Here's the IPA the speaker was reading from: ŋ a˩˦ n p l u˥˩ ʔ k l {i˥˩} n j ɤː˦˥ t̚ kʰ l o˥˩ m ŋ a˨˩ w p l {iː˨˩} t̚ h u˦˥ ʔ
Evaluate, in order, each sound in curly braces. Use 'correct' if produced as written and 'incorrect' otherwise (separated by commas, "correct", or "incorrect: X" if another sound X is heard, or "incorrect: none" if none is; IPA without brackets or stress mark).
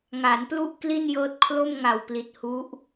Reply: correct, incorrect: i˨˩